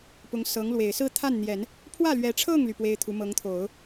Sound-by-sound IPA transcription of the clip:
p ʊ˧˥ ŋ s ɤ˧˥ ŋ l w e˨˩ ɪ̯ s ɹ̩˥˧ t̪ʰ a˥˩ n n̪ j ɛ˨˩˦ n | pʰ w ä˥˩ l ɥ ɛ˧˥ ʈ͡ʂʰ ɤ˥˩ ŋ l y˩ p w e˥ ɪ̯ t̪ʰ u˧˥ m ɤ˧˥ ŋ t̪ʰ o˨˩˦ ʊ̯

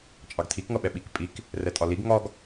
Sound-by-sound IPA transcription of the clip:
t͡ʃʼ ɑ ɡ tʰ i k ŋ ʌ ɓ ɛ ɓ i k pʼ i k | r ɛ tʼ ɒ l i ɡ ŋ ɒ ɡ

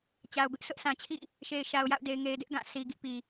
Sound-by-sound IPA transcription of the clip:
t͡ɕ a˨ ʊ̯ b ɪ˦ ʔ sʰ ʊ˦ ʔ s ã˨ t͡ɕʰ ḭ˦˨ | ʃ e˨ ɪ̯ ʃ a˨ ʊ̯ j a̰˦˨ ʊ̯ d e˨ ɪ̯ ŋ e˨ ɪ̯ d ɪ˦ ʔ ɡ ã˦˨ s i˨ ɡ ḭ˦˨ p i˨

